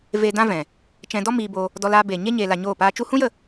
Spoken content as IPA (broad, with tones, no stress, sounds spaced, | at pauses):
v e˧ d ã˦ v ɛ̃˨ | t͡ʃ ɛ̃˧ d ɔ˦ m iː˧ b o˧ | d ɔ˧ l aː˧ b eː˨ ɲ e˦ ɲ eː˧ l a˧ ɲ oː˦˨ p aː˦ t͡ʃ u˦ h ũ˦ j ə˦˨